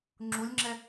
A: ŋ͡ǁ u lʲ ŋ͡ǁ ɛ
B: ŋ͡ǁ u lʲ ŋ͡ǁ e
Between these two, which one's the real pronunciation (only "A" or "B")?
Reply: A